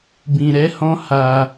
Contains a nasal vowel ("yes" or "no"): yes